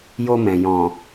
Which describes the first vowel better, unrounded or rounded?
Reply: rounded